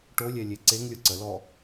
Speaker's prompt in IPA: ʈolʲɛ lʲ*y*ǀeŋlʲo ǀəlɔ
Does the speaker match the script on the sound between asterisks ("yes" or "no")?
no